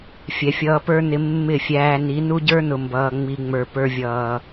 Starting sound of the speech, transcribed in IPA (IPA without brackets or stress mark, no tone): fʲ